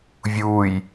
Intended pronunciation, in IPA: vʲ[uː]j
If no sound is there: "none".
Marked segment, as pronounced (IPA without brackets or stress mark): uː